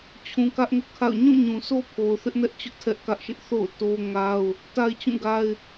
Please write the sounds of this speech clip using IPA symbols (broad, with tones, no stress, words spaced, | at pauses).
t͡ɕʰũ˨kä˦ʔŋʊ˦ʔkʰa̰˦˨ʊ̯ ɲũ˦˨ɲũ˨sʰo˦pʰo˨ʊ̯ θɪ˦ʔnɛ˦ʔt͡ɕʊ˦ʔ tʰɛ˦ʔkä˦ʔʃɪ˦ʔ θo̰˦˨ʊ̯ to˦ŋa˦ʊ̯ | ta˦ɪ̯t͡ɕũ˦˨ ɡa˦ɪ̯